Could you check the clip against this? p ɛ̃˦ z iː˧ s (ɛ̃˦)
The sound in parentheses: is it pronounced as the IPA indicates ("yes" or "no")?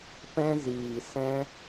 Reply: yes